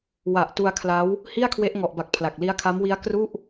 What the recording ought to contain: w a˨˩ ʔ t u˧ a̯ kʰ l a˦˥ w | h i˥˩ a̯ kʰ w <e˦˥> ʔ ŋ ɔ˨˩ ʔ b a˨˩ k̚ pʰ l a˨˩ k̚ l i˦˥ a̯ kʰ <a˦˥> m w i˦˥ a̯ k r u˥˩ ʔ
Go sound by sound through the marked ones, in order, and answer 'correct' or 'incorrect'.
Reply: correct, correct

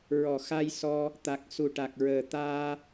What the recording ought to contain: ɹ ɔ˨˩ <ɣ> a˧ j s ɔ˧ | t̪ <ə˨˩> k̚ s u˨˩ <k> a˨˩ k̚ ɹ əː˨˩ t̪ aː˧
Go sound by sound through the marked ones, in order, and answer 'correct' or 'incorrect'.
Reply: incorrect: x, incorrect: a˨˩, incorrect: ʈ

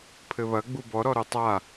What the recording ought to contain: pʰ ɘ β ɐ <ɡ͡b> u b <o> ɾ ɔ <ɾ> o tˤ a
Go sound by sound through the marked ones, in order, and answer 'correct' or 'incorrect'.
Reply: correct, incorrect: ɔ, correct

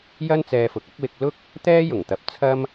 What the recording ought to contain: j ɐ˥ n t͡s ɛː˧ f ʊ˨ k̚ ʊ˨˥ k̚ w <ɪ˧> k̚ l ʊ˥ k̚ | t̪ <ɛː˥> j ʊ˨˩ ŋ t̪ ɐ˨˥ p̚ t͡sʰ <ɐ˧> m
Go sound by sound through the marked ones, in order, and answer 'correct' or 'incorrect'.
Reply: correct, correct, incorrect: ɐ˥

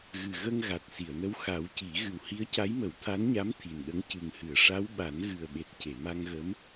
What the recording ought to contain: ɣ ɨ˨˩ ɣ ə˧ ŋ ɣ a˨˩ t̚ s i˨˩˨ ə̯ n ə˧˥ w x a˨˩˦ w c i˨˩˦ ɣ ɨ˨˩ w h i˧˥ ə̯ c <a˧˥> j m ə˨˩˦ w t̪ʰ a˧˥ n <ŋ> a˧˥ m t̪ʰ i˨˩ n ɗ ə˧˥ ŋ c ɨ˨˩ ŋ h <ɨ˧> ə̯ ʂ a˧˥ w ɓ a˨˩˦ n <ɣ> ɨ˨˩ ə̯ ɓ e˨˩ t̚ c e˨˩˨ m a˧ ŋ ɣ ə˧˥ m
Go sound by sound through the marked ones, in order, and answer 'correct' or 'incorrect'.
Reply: correct, incorrect: ɲ, incorrect: ɨ˨˩˨, correct

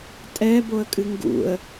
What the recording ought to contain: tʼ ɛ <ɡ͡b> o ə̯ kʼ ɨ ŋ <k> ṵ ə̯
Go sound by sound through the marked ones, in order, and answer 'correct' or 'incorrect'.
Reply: incorrect: b, incorrect: ɡ

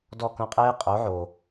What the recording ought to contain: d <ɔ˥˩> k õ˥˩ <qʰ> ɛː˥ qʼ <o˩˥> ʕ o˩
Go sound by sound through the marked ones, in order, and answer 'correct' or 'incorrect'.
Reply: correct, incorrect: qʼ, correct

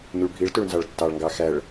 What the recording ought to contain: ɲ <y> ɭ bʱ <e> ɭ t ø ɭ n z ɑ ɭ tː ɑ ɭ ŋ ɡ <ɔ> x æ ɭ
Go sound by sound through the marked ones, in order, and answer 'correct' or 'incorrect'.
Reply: correct, incorrect: i, incorrect: ɑ

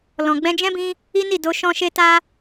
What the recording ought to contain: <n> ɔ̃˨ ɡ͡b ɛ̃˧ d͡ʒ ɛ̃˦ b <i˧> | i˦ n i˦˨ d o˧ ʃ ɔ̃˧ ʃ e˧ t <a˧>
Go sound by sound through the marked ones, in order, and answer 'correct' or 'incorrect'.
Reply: incorrect: l, incorrect: ĩ˧, correct

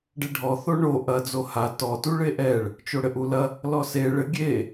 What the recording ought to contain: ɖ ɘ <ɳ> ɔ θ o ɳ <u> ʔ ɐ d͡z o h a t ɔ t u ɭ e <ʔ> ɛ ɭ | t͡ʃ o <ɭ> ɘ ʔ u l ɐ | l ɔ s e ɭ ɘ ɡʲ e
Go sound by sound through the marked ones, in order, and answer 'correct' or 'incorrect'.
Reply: incorrect: ɖʱ, incorrect: o, correct, incorrect: ɽ

